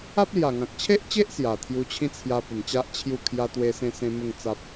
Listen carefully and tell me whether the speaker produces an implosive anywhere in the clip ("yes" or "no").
no